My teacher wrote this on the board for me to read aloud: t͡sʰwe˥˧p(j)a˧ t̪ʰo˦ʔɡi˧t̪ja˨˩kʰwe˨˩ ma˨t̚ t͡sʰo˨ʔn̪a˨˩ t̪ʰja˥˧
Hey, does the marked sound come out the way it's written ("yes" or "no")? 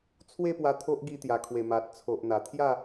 no